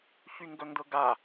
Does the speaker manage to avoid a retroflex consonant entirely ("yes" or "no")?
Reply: yes